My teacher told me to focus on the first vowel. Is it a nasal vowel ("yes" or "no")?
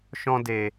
yes